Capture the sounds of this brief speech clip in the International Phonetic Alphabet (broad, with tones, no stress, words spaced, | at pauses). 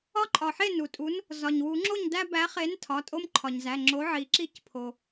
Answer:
ɒ˦ǃʼɒ˩ħe˥˩ nu˩tʼu˨˥n | zɒ˩ɲwu˨˩˦ŋ͡ǁo˥˩ɲdæ˦ bæ˨˥χe˨˥n tʰɒ˩˧˩tʼo˦mǃʰɒ˩ɲzæ˩˧˩ ŋ͡ǁo˨˥ʕi˨˩˦ ǁi˥˩cpʰo˩